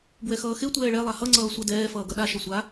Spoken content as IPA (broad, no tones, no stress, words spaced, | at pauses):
bwɛxʌːxe tʷɛːɭɛ lˠahʌ ŋ͡ǀʌːsʷadɛː fʌːɡʌɗa ʃɐsʷa